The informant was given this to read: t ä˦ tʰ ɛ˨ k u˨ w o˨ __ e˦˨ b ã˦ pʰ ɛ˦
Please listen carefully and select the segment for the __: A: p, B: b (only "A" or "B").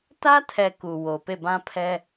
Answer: A